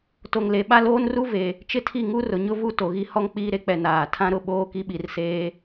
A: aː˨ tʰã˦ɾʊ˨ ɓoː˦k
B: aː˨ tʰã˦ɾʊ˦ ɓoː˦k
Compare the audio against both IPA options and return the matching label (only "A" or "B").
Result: A